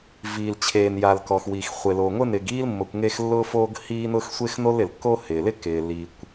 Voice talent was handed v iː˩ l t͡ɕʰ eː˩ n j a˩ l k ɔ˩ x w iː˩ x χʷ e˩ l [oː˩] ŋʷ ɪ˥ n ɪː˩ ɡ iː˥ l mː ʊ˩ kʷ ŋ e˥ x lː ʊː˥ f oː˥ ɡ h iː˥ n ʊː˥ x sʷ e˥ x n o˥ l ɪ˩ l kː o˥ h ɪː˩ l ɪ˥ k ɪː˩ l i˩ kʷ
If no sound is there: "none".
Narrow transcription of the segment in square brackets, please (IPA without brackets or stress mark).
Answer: oː˩